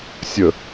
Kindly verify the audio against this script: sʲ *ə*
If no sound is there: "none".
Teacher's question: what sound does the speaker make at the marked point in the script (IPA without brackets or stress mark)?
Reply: ə